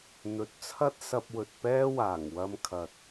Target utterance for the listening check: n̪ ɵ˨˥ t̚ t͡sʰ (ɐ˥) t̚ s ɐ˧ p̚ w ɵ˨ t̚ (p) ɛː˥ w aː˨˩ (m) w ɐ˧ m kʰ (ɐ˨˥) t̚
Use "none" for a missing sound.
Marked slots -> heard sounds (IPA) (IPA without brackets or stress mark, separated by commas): ɐ˥, p, ŋ, ɐ˨